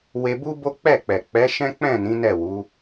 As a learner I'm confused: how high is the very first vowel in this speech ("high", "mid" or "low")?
mid